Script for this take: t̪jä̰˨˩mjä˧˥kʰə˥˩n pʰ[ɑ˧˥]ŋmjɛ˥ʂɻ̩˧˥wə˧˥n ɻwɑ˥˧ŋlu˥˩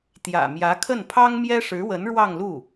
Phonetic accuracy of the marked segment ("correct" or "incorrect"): incorrect